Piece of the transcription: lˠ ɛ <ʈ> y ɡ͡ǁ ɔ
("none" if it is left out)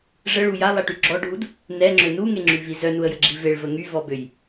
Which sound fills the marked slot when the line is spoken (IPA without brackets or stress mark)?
ʈ